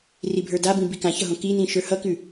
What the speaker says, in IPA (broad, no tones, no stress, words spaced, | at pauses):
ribʱə˞dabĩ bikãçʌɦõ kin̪ĩ ʃə˞hʌkʉ